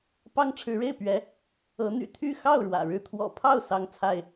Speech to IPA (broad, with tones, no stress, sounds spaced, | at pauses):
p ɑ˦ ŋ ʈ͡ʂʰ ɻ̩˨˦ ɻ e˥˨ ɪ̯ p ɥ ɛ˨˦ | ɤ˨˦ n̪ y̰˨˩ t̪ʰ y˥˨ x ɑ˥˨ ʊ̯ ɻ w ä̰˨˩ ɻ ɻ̩˥˨ t̪ʰ w ɔ̰˨˩ pʰ ɑ˥˨ ʊ̯ s ɑ˥˨ ŋ t͡sʰ a˥˨ ɪ̯